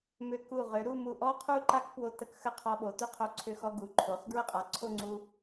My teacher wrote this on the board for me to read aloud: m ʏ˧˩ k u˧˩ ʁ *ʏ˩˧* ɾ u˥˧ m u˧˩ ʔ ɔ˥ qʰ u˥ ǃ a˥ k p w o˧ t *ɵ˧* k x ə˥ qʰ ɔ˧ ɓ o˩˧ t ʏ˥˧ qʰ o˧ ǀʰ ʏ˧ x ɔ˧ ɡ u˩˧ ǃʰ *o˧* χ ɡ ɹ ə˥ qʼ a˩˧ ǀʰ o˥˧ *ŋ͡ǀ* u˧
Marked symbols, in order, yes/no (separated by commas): yes, no, no, yes